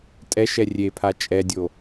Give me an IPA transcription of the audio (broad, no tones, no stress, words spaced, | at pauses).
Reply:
tʼɛʃ ɛrʲepʰa t͡ʃʼɛdʲo